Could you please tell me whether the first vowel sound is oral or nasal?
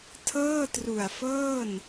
oral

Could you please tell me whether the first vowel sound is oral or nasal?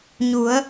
oral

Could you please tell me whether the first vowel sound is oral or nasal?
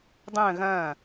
nasal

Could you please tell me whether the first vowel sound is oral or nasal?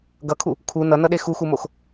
oral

